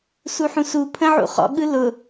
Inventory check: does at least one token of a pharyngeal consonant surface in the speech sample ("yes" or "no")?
yes